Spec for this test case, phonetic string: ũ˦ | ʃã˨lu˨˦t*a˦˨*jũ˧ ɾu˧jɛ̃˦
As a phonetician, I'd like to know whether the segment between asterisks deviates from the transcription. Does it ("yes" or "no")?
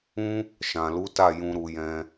no